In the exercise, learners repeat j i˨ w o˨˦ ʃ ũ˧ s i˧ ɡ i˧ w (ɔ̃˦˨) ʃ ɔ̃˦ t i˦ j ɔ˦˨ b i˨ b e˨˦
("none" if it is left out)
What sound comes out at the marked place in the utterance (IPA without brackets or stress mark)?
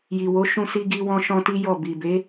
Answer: ɔ̃˧